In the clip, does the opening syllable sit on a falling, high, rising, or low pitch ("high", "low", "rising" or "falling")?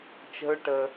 high